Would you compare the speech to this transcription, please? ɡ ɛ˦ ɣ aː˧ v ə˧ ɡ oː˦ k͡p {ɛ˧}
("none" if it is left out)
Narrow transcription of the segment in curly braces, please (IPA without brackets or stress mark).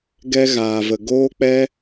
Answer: ɛ˦